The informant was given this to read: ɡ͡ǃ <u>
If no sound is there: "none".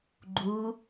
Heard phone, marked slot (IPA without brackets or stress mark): u